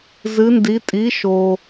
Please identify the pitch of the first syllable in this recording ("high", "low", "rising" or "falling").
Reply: rising